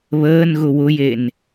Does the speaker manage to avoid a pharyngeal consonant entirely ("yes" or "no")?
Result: yes